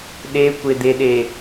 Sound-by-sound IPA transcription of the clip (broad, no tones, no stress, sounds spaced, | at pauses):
ɗ e kʷ e d̪ e ɗ e